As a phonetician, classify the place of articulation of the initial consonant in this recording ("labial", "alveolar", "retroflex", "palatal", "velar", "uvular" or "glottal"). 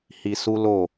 glottal